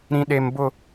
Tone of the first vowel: high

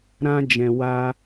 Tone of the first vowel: high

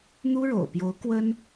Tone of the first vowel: high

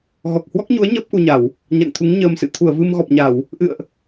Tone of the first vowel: low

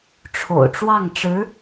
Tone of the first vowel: low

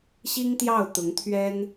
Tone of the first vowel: high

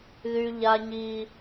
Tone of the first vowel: high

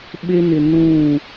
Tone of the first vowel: high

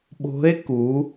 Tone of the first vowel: rising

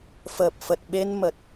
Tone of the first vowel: low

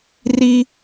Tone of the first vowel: low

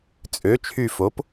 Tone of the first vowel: rising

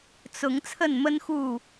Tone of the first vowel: rising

